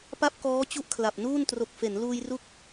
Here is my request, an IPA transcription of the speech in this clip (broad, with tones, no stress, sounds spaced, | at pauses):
p a˥˩ p̚ k ɔː˦˥ t͡ɕ u˥˩ ʔ kʰ l a˨˩ p̚ n uː˥˩ n t r o˨˩ k̚ f e˩˦ n l uː˧ j r u˦˥ k̚